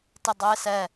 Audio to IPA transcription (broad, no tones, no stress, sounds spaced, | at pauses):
t ɪ dˤ ʊ ɪ̯ s ɛ